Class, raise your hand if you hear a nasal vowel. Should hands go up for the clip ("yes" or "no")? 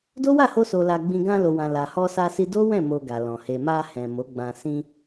yes